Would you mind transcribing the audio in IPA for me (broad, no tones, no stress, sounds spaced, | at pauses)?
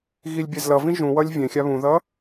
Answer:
ɣ i lʲ bʲ ɛ z l ʌ v ĩ ʒ ũ w ʌ lʲ vʲ ẽ xʲ a β ũ ð ʌ